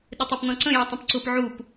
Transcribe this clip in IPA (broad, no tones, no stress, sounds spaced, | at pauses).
ɗ ɪ tˤ ɛ p n ɔ̃ ǀ ə̃ j ʌ tˤ ə̃ p ǀ ʊ p ʕ u p